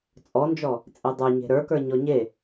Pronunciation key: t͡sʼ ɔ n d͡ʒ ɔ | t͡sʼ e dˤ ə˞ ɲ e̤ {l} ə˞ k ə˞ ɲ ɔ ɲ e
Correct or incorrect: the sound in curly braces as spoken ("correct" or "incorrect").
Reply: incorrect